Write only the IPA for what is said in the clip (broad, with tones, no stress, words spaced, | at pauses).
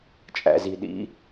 t͡ʃʼæ̰˩zi˩ɗḭ˩˧